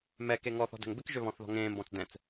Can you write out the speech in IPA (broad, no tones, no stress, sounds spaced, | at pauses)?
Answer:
m ɛ k e ŋ ɔ θ ɔ̤ d ɛ̤ ŋ b ɪ k ʒ ø β ɔ̃ θ ð ɔ̤ ŋ ẽː m b ɔ̃ t͡s d ɛ̃ t͡s